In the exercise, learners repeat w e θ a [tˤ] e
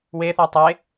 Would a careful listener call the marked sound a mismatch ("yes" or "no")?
no